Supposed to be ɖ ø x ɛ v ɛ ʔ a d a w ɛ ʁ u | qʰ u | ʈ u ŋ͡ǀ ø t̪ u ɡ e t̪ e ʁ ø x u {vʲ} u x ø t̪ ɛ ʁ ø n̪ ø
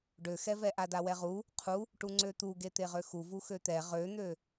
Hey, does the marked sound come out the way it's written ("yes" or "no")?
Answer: no